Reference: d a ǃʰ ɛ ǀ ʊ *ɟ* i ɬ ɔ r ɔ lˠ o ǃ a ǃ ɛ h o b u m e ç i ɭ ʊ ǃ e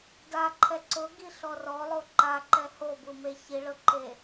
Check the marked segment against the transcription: incorrect: ɡ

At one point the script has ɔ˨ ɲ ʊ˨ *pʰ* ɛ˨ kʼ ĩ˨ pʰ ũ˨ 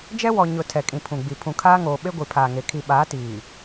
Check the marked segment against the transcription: incorrect: tʰ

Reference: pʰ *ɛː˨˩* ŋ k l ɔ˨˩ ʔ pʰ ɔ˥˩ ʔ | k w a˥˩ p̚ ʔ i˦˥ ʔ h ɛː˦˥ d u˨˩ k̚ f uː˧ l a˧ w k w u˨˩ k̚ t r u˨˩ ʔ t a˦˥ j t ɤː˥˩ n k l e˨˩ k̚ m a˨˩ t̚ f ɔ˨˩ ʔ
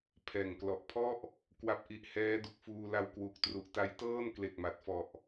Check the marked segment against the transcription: correct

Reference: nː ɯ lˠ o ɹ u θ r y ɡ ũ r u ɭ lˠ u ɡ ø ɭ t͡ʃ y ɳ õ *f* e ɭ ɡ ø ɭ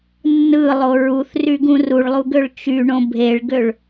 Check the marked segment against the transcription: incorrect: bʱ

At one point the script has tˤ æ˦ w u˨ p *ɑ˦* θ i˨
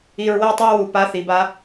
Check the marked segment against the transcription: incorrect: a˦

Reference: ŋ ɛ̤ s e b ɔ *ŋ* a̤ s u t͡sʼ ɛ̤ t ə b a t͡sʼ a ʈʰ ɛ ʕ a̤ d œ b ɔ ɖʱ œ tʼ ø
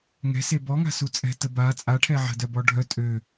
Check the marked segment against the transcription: correct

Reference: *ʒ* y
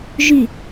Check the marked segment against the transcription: correct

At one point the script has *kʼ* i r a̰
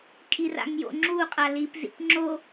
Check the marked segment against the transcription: correct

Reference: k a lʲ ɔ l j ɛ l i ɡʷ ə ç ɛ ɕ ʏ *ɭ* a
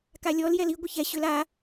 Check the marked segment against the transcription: incorrect: l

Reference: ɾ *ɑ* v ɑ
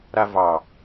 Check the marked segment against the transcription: incorrect: a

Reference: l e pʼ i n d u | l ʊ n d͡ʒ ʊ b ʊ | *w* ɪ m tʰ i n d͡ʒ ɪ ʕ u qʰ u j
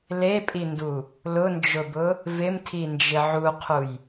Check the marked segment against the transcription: incorrect: v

